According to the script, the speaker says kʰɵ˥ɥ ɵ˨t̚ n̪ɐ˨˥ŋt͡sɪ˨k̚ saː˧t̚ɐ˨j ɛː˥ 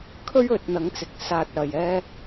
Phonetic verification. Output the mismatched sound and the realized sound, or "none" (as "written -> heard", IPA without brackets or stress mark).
none